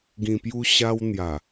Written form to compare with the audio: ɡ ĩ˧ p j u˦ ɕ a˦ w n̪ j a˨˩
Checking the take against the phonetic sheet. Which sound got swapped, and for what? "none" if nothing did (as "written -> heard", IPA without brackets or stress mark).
none